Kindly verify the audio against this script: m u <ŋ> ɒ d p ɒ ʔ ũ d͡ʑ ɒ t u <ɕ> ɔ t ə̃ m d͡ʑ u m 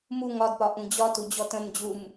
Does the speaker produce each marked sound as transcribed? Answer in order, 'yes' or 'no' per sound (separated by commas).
yes, no